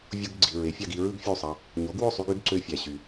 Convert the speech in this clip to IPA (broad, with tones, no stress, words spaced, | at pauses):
vʲo˧ɡ ɡ͡ǀi˩ ɹe˩˥fʲɑ˧ɡi˧ ɹɯ˥ɡfʲu˥˩sˤɑ˧ | ɲo˩˥ɡwo˥˩sˤy˧ɡ y˩˥ɡǀø˧fʲæ˩ ɕy˩